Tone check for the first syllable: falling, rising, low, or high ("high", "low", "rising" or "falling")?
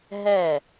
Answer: falling